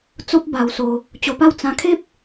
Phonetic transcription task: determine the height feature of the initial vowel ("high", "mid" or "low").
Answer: mid